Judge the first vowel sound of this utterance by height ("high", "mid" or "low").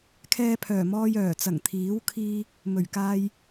mid